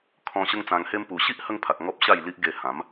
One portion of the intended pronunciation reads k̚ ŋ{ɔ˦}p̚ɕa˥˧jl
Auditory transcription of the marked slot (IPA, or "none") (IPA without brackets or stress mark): ɔ˦